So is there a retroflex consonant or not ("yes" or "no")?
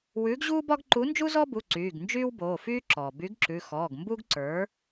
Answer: no